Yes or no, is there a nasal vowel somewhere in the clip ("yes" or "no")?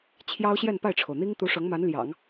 no